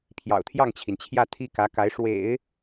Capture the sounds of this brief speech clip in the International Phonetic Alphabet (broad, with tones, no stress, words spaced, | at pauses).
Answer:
pʰjɑ̰˨˩ʊ̯t̪ʰjɑ˥˩ŋt͡ɕʰi˩nt͡ɕʰjä˥˩ t̪ʰi˥kä˧˥ka˧˥ɪ̯ ʂwḛ˨˩˦ɪ̯